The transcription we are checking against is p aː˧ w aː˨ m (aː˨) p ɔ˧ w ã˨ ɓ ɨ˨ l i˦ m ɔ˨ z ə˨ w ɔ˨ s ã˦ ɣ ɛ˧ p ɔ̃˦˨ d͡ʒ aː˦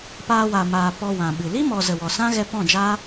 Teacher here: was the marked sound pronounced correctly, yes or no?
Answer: yes